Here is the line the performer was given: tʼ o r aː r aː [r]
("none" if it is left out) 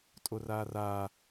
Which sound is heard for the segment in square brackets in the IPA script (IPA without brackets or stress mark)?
none